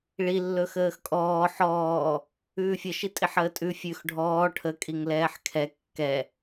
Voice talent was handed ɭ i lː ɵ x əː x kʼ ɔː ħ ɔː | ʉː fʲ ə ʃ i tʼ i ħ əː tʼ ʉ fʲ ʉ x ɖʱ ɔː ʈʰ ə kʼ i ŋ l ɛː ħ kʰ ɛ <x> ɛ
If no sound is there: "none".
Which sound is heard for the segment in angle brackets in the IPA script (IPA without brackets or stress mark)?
kː